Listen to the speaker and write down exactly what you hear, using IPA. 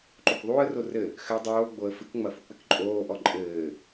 ǃ o k ðˤ uː ə̯ r o r ɘ | x ɘ dˤ oː ɡ͡b o ə̯ f ɨ k ŋ͡m ɐ f u k͡p ɘ k ǃʼ oː ʔ ɔ ǃʼ ɘː

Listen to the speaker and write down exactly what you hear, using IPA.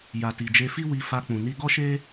j a˨ t i˨ d͡ʒ e˧ f i˦ w i˧ f a˧ k͡p ũ˨ n i˧ ɡ ɔ˦ ʃ e˦

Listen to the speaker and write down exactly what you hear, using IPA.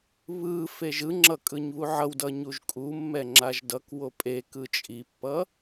β ɯ f e ʒ ɯ ŋ͡ǁ ʌ kʼ ɯ ɲ β u ʕ ʌ w d ʌ ɲ u ʒ kʼ u mː ɛ ŋ͡ǁ a ʒ d ʌ k w o pʼ e k ɯ t͡ʃʼ i pː ʌ

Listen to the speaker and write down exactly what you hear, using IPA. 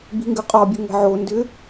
b i̤ ŋ ɡ ʏ qʼ ɒ bʲ ə ŋ ə̤ ʕ o n d ʏ

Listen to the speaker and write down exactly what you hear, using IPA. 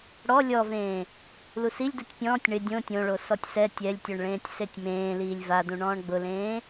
ɽ ɔ lʲ ɔ v ẽː | l u s i lʲ d u tʲ pʲ ɔ̃ː tʲ ɳ ɪ dʲ õ tʲ õ ɭ o s ɔ tʲ s ɛ tʲ ɛ lʲ tʲ o ɳ ɭ ẽː tʲ s e tʲ m ẽː l iː lʲ v a d ũ ɳ ɔ̃ː ɳ ɡ͡b ʊ l ẽː

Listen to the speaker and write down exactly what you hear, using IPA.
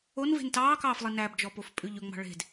o n v e̤ n t ɑː k ɑː f lˠ e n æ b d͡ʒ ɔ p o f pʼ ʉ ʎ ɵ ŋ͡m ɑ̤ ɭ e̤ d

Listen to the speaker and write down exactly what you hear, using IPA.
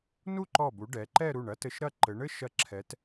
n u˥˧ ǃ ɔ˧˩ b u˩˧ ɖ ɛ˩˧ ǃ ɛ˥˧ ɾ u˧˩ ɳ ɐ˥ t ɘ˧ ʃ ɾ ɐ˥˧ ǃ ɘ˩˧ ɳ ɘ˥ ʃ ɐ˧ ǁʰ ɛ˩˧ t

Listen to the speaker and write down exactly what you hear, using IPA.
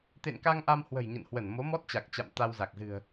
t̪ ḛ˧˨ n k a˧ ŋ ʔ a˧ m h w ə̤˨˩ j ɲ ə̰˧˨ n h w ə˧˩ n m o˨˦ m ɔ˦˥ t̚ t͡ɕ a˨˩ k̚ t͡ɕ a̰˧˨ m t̪ a˧ w z a˨˩ k̚ z ɨ̤˨˩ ə̯

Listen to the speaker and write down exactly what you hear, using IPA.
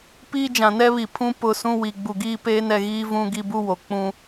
p iː˦ d͡ʒ ã˨ n ɛ˦ β i˨ pʰ ũ˦ p ʊ˦˨ s ũ˦ w i˨ ɡ͡b u˨ ɡ iː˦ p eː˦ n ɛ˨ ɣ iː˦ v ũ˦ ɡ i˦ b u˦ w o˨ k͡p ũ˦

